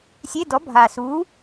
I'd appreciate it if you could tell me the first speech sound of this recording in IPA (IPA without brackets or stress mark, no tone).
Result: sʲ